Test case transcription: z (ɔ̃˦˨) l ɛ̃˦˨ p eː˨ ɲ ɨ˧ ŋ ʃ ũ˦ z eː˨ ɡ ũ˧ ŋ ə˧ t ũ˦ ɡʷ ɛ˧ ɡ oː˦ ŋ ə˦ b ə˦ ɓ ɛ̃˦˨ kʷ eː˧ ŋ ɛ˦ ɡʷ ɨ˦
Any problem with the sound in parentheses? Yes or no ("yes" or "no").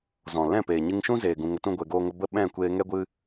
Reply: yes